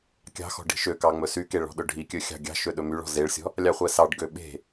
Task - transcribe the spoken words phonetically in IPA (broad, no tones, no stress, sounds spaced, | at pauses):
kʲ ɑ̤ x ɔ̤ ɖ i̤ ʃ ø k ɑ ŋ͡m ɵ s y k e ɭ ɔ̤ ɗ ɵ ɖʱ i kʲ ɵ xʲ ɑ̤ ɡʲ ɑ̤ ʃ ø ɗ ɵ m y ɭ ɔ̤ z e ɭ sʲ ɔ̤ | lʲ ɑ χʷ ɛ s ɑ ɖ ɡ ø ɓ e̤